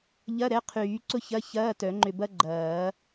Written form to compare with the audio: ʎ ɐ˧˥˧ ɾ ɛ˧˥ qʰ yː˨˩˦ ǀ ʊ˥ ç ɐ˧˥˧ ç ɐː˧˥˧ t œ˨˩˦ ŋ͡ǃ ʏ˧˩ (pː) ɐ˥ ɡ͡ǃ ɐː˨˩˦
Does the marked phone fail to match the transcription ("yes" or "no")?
yes